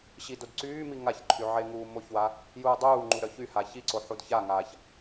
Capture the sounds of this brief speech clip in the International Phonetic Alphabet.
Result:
ɕ i d o d ǀ yː m i ŋ a ç ǃʰ y ʕ e ŋ uː m o ç w a | j uː dˤ uː ŋ͡ǃ u ɾ œ ç y h a ç i ǀ o ħ u d ç a ŋ aː ç

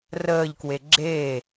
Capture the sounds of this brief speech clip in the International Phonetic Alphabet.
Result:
r əː ʎ k w e ɡ͡ǁ e

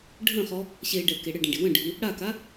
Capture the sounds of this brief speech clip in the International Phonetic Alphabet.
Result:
ɖʱ ə̃ χ ɔ | ɕ e ɖ ɛ k e ɽ ɘ ɖ ə̃ ɖ i w ə̃ ɖʱ i | ɽ a k a

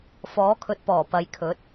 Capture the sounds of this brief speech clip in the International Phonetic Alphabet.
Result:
f ɔː˨˥ kʰ ɵ˨ t̚ p ɔː˨˩ p ɐ˨˧ j kʰ ɵ˨˥ t̚

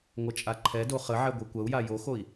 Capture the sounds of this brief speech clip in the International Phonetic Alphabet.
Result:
ŋʷ ɐ t͡ʃʼ a ǃʰ ɛ d o χ ə ʕ ɛ ɡʷ ɛ kʷ ɐ u̯ j a j o x o i̯

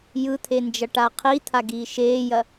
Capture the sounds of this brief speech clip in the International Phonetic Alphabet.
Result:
j ɯ t̪ʰ e n d͡ʒ ɐ ʈ a qʰ i t̪ʰ a ɡ iː ʃ eː j ɐ

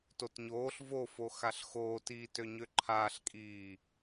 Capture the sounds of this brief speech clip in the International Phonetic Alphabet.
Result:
t o t ɲ oː ɬ v o f o x a ɬ x oː t iː t ø ɲ ø ǃʰ aː ɬ kʼ iː

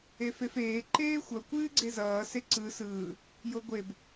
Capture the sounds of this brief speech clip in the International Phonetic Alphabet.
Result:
e f e f eː ǃ eː xʷ ʌ kʷ ɨː ɡ͡ǀ e z ʌː s e ǀ ɯ s ɯː | j o ɡʷ e b

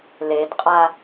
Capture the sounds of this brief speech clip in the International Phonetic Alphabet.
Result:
l e d qʼ a

